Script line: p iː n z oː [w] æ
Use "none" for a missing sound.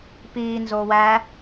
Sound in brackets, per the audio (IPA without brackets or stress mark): w